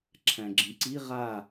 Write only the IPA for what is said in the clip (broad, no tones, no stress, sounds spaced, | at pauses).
ǁʰ æ̃ ɡ͡ǁ ĩ ǀ i ʁ a